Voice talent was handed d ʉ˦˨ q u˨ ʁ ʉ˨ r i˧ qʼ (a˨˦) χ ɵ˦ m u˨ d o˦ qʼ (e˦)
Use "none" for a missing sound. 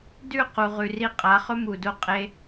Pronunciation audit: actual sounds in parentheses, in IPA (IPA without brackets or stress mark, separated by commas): a˨˦, e˦